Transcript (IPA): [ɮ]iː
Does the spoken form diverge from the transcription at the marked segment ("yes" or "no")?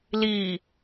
yes